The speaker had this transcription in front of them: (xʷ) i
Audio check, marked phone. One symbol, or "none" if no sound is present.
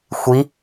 xʷ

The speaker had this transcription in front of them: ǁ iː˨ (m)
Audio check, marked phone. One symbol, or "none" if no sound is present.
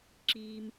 m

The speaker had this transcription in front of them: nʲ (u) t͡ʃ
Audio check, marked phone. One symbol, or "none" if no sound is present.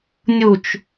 u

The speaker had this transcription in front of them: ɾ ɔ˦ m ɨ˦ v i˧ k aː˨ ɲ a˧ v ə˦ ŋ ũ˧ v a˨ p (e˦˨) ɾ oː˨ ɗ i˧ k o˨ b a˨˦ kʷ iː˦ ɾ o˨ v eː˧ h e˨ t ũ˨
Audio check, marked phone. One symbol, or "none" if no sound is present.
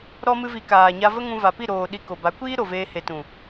i˦˨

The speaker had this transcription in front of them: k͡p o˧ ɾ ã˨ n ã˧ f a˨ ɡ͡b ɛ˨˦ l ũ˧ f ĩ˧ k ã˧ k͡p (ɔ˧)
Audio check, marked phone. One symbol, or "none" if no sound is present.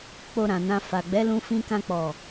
ɔ˨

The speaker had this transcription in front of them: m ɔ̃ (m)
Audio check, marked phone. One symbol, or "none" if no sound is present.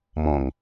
ŋ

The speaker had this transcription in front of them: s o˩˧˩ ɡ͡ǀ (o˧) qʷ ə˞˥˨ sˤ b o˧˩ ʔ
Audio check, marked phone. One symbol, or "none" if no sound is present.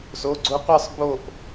o˧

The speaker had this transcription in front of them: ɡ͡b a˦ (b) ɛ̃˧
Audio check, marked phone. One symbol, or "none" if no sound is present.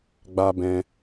b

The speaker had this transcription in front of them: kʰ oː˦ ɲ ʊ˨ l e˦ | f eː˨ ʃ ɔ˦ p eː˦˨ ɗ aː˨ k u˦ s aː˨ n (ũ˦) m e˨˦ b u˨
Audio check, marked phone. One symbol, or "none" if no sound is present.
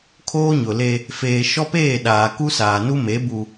u˦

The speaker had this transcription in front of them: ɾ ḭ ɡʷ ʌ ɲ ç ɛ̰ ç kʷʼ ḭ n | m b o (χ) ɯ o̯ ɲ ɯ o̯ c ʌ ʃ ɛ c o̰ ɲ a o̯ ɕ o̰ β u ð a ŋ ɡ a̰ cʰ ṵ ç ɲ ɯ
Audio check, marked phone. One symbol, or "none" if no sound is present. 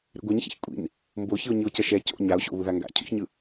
ç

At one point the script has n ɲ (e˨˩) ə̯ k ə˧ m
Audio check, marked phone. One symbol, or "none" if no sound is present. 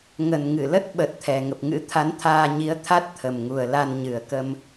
ɨ˨˩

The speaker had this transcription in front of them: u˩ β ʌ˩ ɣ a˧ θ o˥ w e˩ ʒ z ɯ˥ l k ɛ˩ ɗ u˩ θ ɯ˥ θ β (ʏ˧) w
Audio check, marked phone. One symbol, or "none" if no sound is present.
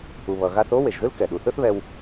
ɛ˧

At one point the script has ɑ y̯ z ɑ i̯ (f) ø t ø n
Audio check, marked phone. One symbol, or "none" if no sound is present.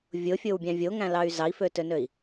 f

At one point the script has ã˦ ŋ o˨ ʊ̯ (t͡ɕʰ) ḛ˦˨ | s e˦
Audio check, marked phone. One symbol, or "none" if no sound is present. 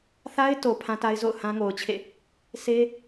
t͡ɕʰ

